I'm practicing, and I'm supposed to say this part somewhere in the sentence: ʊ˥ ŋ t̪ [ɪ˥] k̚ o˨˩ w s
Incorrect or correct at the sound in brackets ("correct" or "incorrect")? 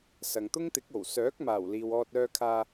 incorrect